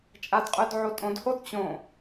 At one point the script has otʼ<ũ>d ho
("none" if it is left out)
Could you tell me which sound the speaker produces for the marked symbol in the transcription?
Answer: õ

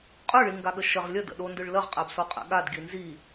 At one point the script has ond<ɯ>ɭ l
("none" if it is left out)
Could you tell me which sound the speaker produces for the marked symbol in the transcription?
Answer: ɯ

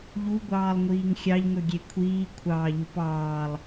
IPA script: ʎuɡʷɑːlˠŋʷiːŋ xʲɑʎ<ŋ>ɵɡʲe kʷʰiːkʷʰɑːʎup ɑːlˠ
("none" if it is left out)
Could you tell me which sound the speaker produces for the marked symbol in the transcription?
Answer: ŋ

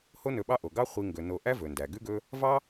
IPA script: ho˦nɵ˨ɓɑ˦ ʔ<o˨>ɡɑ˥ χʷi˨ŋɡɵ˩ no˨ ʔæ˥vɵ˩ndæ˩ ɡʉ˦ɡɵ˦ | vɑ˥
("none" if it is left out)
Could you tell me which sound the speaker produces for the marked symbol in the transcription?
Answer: o˩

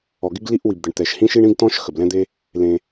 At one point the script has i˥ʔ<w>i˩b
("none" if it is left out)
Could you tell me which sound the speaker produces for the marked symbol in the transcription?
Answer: w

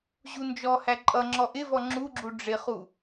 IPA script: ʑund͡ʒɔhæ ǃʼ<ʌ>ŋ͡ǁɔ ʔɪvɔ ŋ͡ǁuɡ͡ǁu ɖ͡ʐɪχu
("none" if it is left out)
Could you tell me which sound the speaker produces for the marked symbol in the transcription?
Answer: ʌ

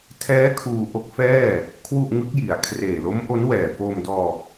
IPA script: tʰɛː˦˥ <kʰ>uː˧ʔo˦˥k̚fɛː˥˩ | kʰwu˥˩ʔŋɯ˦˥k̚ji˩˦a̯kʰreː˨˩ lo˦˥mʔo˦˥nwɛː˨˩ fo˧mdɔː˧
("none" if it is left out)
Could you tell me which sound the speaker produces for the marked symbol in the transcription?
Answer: kʰ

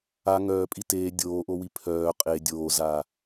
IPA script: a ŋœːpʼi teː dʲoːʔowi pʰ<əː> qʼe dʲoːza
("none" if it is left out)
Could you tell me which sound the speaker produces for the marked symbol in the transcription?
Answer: œː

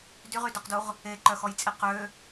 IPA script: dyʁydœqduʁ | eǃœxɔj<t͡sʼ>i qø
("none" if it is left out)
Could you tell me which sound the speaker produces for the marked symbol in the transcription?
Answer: t͡sʼ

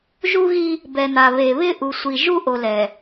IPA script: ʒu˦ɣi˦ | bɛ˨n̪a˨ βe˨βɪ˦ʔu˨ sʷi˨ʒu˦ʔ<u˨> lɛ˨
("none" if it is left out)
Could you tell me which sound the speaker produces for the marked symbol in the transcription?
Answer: o˨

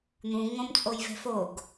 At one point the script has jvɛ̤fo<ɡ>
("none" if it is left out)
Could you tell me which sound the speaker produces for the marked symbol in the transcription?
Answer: ɡ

